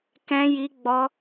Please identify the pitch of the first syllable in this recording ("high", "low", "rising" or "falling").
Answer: high